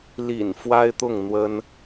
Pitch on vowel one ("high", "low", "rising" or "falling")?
low